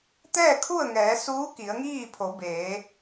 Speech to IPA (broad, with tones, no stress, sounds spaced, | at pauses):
t̪ ɛː˥˨ kʰ u˥˨ ə̯ ŋ ɛː˩˧ s uː˧˥ k i˩˧ ə̯ ŋ iː˥˨ pʰ o˩˧ b eː˩˧